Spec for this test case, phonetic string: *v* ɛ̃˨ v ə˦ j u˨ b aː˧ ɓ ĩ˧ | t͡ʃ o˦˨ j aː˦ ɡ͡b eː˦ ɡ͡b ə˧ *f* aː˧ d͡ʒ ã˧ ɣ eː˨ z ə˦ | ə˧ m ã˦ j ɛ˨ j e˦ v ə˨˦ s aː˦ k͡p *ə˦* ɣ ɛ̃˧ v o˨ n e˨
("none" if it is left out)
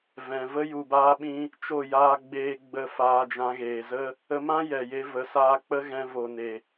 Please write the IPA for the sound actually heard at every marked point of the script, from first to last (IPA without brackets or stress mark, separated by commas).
v, f, ə˦